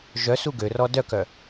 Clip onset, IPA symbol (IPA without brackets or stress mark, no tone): ʒ